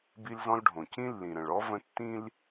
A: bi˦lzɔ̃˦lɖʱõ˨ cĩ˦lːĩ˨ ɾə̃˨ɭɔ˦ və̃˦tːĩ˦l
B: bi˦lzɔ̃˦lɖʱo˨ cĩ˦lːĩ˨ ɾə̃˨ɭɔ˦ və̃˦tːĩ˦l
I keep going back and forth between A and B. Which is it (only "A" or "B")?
A